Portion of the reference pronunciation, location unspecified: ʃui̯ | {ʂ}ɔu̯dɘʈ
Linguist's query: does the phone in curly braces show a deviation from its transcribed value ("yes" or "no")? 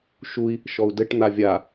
yes